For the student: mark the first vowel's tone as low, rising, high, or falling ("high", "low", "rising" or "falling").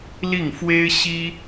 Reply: falling